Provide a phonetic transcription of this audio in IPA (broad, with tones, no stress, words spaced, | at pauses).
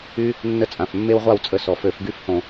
y˦ | nːə˦t͡sʼã˩˧˩fmːe˦wʁʷa˥˩w t͡sʼə˧˩˧sɔ˩fø˧˩˧f ɡy˥˩fhõ˧˩˧